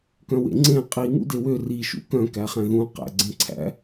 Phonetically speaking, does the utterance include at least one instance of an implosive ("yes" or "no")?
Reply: no